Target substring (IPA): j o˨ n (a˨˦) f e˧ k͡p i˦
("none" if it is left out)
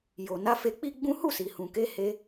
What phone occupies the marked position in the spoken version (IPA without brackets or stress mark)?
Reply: a˨˦